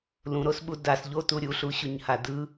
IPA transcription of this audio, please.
l ũ ɾ o s ɓ u d a s ʎ o t u ɾʲ u ɬ u ɕ u ɲ h a d ɯ

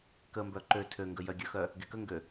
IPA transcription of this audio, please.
k ə m b œ ǃ ø tʰ ø ŋ ɡ ə j œ ɡʲ ə x œ | ɡ e k ə ŋ ɡ ø

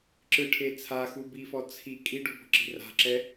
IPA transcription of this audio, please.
ǁ ɯ ʈʰ e t͡sʰ a x u b iː f ɔ t͡sʰ i kʼ i ɖ u b ɔ̤ ǁ i̤ r a̤ ǁ ɛ

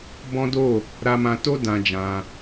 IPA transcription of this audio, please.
b ɔ̃˦ d o˦˨ | ɾ a˧ m ã˧ t o˦ d ã˧ d͡ʒ ã˧

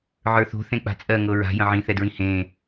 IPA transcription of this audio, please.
ʕ ə˞ θ o̤ θ ẽ k͡p a̤ t͡sʼ ɜ ŋ ɤ ɹ a̤ j ə̃ ʕ ĩ θ ɛ d ɹ ĩ h ẽː

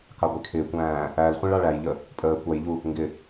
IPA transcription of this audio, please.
k ɑ ɡʷ i kʰ ɪː kʷ æ̃ː | æ l χʷ ĩ ɭ ɑ ɭ æ j ʎ ə | pʼ əː kʷ ɑ j ʎ u | ŋ ɡ ɪ

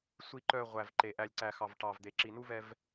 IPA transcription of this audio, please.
sʷ i˨ ǃ œ˨ ʁʷ æ˨ v ǃ e˨ ʔ æ˨ lʲ ǀ æ˨ x ɑ˨ v ʈ ɑ˨ v d̪ e˨ ǁ i˨ n u˦ v ɛ˦ v

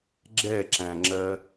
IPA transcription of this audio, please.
ɡ͡ǁ ɛ ǁ æ̃ ŋ͡ǁ ɜ

